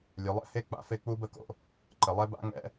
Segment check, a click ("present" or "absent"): present